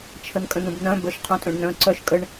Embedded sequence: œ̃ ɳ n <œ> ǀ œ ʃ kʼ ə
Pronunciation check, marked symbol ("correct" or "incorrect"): incorrect